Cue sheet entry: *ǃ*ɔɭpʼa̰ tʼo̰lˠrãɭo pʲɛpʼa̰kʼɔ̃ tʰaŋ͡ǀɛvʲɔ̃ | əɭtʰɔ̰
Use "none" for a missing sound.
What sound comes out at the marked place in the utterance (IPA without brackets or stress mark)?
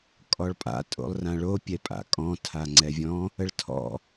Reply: kʼ